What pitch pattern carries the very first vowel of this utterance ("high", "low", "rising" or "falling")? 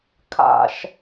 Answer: low